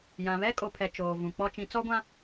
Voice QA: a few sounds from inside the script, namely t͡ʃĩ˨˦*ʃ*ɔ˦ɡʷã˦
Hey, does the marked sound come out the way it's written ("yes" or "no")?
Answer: no